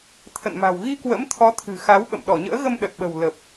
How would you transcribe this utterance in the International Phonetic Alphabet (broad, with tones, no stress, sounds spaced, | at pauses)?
t̪ʰ ə̰˧˨ n m a̤˨˩ w ɣ i˧ k w ə̰˧˥ m t̪ʰ ɔ˨˦ t̪ʰ ɨ̤˨˩ x a˨˦ w ɓ ə̰˧˨ m ɗ ɔ˧˩ ɲ ə̰ː˧˥ ɣ ə˧ m ɗ ə˨˩ t̚ ɓ ə̤˨˩ w l ə˨˩ p̚